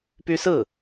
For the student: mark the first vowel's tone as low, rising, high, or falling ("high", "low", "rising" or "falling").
high